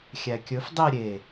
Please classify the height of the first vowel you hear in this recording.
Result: low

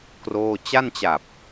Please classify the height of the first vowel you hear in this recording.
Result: mid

